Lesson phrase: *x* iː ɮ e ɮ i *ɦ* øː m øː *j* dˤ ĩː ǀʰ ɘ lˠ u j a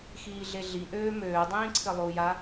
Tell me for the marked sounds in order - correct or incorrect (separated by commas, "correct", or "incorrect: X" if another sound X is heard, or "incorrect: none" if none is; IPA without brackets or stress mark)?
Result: correct, incorrect: ʔ, incorrect: none